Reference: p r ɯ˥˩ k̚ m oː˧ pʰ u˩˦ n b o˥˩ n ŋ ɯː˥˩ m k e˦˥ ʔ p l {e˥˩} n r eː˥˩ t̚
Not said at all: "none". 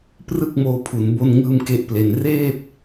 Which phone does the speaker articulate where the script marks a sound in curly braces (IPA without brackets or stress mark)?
e˧